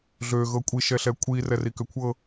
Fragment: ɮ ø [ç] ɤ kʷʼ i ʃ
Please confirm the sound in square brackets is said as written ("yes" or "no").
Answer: no